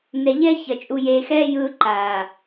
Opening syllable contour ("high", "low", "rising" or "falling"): low